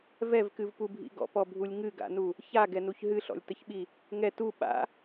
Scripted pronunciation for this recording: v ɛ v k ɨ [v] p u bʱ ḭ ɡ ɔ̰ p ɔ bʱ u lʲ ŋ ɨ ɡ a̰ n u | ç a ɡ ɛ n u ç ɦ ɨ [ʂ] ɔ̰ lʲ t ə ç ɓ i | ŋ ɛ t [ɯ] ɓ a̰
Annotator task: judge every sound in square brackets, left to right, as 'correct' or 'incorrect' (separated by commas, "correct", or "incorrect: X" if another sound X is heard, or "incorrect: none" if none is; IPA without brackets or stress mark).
correct, incorrect: ɬ, incorrect: u